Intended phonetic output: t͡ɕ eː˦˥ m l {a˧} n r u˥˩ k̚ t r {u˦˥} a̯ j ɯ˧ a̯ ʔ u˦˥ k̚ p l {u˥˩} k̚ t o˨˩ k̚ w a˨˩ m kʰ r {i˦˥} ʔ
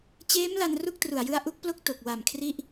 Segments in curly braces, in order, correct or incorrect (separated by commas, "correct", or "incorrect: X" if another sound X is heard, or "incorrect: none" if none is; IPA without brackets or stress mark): correct, incorrect: u˨˩, incorrect: o˥˩, correct